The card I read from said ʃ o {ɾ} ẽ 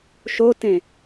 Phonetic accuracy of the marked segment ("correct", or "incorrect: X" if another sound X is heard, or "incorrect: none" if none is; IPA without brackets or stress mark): incorrect: t